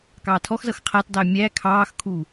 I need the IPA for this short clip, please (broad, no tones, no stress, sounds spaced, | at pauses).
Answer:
k ɑː tʰ ɔ x z ʌ x qʰ æ t dˤ æ mʲ æ kʰ ɑː x kʰ u